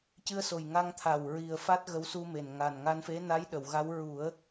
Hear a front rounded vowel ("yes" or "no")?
no